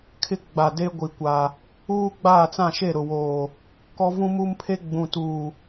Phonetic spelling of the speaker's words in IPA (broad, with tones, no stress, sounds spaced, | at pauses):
kʰ ɪ˦ ɡ͡b a˨ d e˦ ɡʷ i˨ kʷ a˨ | uː˦ ɡ͡b aː˦˨ t͡s ã˦˨ ʃ e˦˨ ɾ ʊ˨ w oː˨ | k ɔ˦ v ũ˦ m u˦ m pʰ e˦ ɡ͡b ũ˨ t uː˨